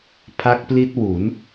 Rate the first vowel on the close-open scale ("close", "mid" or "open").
open